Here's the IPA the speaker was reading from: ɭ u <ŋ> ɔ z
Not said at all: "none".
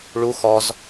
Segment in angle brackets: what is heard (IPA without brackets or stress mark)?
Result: x